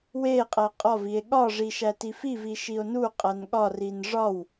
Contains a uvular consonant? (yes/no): yes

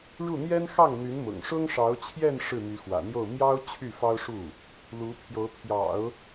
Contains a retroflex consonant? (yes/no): yes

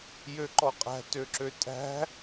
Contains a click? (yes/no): yes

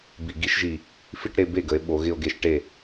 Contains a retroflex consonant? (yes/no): yes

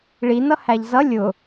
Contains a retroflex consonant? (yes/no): yes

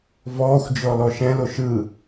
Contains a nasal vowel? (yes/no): yes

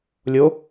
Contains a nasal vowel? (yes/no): no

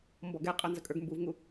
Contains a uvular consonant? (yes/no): yes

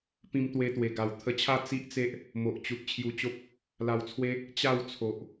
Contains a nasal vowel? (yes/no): yes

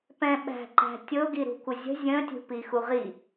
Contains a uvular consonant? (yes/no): yes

